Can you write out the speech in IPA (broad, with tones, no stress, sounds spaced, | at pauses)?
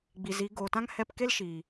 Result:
ɡ͡b i˨ z i˨˦ ɡ oː˨ t ã˦ ŋ h ɛ˦˨ p k e˦ l ʃ iː˨